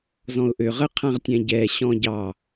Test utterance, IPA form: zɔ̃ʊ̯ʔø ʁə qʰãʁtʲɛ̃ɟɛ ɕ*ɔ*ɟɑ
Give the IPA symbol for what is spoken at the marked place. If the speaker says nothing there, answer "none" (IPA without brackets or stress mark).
ɔ̃